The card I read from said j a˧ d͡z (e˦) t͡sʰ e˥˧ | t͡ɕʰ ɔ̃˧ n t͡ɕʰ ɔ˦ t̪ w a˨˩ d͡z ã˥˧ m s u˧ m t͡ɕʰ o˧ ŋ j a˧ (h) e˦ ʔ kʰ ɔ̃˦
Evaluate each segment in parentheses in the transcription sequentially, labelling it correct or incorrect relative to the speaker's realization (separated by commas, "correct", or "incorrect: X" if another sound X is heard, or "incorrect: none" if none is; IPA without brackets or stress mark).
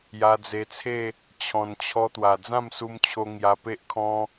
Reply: incorrect: e˧, incorrect: p